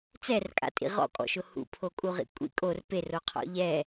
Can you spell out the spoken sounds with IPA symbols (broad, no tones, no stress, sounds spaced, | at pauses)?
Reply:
t͡s ɛ r kʼ a̰ tʼ ḭ ʁ ɔ̰ kʼ ɔ̰ ʃ ʊ h ṵ pʰ o kʼ u ʁ ḭ kʷʼ ḭ kʼ o r p e r o qʰ ɔ̰ ʎ ɛ